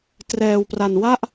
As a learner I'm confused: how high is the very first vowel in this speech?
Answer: mid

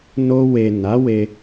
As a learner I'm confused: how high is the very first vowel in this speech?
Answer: mid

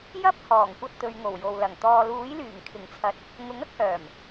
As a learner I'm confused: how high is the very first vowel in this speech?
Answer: low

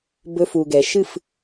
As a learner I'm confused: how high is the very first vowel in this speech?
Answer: mid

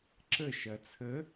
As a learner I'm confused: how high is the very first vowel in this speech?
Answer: mid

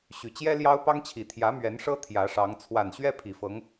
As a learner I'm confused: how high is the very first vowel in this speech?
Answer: high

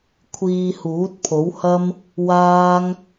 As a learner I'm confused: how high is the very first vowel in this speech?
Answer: high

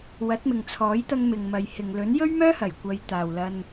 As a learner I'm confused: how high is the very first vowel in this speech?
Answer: low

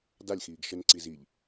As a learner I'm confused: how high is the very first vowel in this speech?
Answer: low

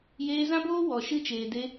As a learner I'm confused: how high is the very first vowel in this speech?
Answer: mid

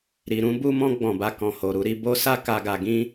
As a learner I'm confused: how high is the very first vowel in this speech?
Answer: high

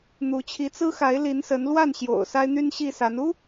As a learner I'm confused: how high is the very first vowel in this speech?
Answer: high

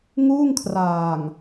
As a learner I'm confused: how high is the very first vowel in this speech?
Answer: high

